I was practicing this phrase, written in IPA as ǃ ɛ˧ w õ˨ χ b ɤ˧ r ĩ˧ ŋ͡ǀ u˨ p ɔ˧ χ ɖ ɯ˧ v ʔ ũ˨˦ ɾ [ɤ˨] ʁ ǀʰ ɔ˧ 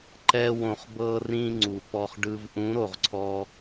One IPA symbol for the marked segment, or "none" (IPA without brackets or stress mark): o˨